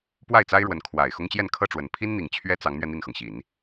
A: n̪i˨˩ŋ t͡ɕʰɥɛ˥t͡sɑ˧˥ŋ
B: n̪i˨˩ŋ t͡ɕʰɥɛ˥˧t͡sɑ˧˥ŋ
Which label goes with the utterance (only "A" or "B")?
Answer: A